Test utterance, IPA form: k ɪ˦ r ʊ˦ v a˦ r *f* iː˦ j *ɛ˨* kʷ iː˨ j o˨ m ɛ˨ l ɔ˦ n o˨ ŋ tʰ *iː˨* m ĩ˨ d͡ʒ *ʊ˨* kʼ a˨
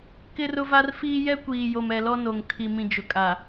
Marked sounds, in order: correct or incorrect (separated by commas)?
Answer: correct, incorrect, incorrect, correct